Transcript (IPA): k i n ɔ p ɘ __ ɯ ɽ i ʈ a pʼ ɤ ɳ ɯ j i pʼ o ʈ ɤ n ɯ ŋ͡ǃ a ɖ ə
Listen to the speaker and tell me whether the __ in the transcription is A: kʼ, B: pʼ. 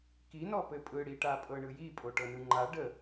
B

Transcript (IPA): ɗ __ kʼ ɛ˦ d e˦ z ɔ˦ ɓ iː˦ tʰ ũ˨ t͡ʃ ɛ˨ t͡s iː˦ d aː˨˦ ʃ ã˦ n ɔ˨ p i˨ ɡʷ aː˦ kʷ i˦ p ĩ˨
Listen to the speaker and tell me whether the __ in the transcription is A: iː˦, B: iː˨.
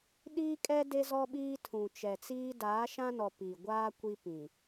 A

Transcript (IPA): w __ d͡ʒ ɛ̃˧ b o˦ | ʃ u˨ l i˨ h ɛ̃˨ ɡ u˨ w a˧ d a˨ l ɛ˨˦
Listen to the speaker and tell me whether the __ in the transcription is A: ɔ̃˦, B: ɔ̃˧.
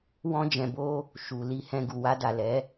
A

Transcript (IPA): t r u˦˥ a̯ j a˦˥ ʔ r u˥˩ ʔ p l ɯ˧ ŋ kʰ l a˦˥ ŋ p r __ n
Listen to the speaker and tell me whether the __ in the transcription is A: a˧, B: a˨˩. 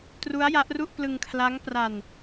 A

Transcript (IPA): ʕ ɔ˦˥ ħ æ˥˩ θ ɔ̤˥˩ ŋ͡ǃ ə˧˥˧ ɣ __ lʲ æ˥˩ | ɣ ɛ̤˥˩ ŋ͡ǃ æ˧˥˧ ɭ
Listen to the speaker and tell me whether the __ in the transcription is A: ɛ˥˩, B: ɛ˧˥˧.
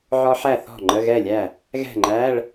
A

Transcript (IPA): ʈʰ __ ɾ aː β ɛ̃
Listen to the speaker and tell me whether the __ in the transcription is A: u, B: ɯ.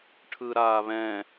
B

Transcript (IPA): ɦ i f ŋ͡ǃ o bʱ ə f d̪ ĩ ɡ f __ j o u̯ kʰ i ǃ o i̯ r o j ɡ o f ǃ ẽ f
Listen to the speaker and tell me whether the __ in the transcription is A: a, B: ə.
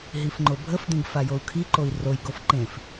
A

